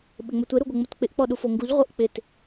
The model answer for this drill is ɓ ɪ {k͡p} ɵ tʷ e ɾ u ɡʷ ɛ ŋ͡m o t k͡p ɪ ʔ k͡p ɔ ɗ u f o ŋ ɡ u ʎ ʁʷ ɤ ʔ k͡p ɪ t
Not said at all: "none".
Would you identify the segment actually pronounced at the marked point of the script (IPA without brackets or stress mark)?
ŋ͡m